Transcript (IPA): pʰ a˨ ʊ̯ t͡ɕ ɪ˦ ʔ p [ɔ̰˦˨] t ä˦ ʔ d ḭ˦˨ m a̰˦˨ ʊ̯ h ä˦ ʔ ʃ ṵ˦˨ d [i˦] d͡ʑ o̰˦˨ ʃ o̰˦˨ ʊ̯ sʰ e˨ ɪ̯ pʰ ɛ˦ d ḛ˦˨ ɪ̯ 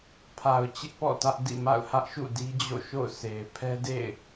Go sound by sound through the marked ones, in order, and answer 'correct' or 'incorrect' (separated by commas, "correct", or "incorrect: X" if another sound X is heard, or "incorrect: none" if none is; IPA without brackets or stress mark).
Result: correct, correct